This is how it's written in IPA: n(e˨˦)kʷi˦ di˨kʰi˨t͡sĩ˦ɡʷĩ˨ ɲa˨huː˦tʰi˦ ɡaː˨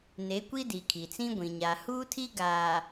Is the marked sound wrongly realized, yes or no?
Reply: no